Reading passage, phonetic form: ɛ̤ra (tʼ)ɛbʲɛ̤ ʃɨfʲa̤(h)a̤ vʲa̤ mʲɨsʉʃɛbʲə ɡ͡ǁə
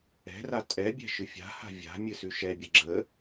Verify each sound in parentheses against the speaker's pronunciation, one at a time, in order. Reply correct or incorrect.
correct, correct

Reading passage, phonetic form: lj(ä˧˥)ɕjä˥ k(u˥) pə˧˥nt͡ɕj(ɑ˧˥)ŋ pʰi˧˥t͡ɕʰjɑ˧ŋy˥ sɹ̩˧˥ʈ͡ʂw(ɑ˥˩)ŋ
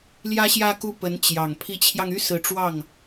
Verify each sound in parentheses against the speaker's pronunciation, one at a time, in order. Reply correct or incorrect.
incorrect, incorrect, incorrect, correct

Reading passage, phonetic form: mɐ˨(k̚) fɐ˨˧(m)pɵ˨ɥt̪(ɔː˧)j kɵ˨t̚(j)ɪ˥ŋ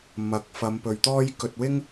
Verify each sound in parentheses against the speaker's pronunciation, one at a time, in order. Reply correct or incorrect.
correct, correct, incorrect, incorrect

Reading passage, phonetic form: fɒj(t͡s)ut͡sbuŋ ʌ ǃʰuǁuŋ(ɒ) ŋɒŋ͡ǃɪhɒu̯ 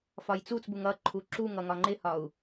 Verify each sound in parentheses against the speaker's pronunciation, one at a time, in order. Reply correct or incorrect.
correct, incorrect

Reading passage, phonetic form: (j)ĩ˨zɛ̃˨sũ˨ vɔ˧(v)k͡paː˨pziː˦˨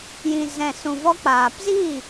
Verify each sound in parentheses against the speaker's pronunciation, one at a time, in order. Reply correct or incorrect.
correct, incorrect

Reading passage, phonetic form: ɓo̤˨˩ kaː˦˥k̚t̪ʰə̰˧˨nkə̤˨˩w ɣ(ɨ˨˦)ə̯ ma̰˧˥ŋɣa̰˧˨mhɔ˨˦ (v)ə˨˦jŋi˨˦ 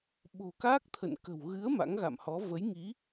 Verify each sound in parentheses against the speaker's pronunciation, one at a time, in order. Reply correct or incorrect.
correct, correct

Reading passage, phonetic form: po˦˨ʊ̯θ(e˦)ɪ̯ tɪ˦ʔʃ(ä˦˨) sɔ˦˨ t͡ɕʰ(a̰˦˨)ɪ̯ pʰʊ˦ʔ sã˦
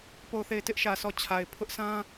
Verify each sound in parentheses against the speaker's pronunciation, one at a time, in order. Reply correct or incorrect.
incorrect, incorrect, incorrect

